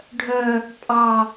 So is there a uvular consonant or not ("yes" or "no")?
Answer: no